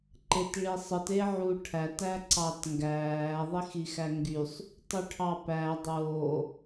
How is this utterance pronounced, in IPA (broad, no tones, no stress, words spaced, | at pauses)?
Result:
ǃetɭisˤɯt eʕuʈʰæt æǀɑtŋɡæː ðˤixixæŋɡysˤ | tˤyʈʰɑpæ dˤoː